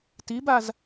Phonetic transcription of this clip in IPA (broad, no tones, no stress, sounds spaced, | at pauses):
t i b a z